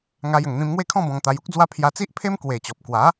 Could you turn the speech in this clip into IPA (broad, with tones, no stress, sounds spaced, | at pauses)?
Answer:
ŋ a˧ j ə˨˩ ŋ n̪ ĩ˧ m ŋ w e˥˧ kʰ ɔ̃˥˧ b ɔ̃˧ ŋ t̪ a˧ j u˦ k̚ d͡z w a˦ pʰ j a˧ t͡s i˦ ʔ pʰ e˦ m k w e˨˩ t͡ɕ ɔ˨ p̚ k w a˨˦